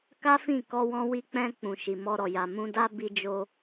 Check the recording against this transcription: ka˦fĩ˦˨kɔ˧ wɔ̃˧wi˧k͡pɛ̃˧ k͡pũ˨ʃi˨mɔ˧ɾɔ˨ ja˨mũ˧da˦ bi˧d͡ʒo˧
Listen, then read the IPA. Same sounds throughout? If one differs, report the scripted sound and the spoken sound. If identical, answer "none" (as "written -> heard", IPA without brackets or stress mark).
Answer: none